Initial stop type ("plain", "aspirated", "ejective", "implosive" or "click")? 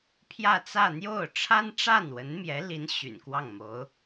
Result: aspirated